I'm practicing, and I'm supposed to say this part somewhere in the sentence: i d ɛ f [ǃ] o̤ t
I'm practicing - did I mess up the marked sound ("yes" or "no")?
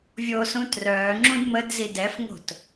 yes